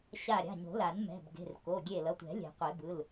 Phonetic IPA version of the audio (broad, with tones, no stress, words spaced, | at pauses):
ɕa˧˩ɾʲa̤˩˧˩ɲo̤˨˩˦la˨˩˦n mɛ̤˩˧˩bɡe̤˩˧˩r ko˩˧˩ɡʲe˧˩lʌ˩˧˩tʷɛ̤˨˩˦ lʲɛ̤˨˩˦qʷe˨˩˦bɯ˩˧˩l